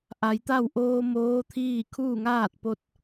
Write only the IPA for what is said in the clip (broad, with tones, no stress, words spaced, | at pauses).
ʔa˩˧jt̪a˥˨w ʔoː˧ moː˧˥t̪ʰiː˥˨ kʰuː˥˨ŋaː˥˨t̚po˧t̚